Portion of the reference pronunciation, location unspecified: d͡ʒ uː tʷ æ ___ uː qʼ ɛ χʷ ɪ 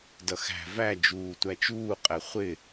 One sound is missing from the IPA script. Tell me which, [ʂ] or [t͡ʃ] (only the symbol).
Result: t͡ʃ